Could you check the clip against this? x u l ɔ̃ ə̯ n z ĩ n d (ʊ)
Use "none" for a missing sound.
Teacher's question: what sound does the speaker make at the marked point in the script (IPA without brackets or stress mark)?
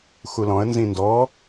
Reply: ɔ